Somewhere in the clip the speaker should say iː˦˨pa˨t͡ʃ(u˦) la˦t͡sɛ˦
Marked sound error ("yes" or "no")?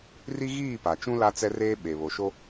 yes